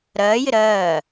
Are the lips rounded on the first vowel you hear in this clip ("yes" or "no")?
no